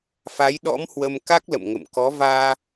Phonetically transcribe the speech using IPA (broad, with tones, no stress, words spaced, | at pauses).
fa˨˦jɗɔ̰˧˥mhwə˧m ka˦˥k̚lə̰˧˨mŋə̰˧˨mkɔ˨˦ vaː˧